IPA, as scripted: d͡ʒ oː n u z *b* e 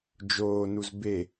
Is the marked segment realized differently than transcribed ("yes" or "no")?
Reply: no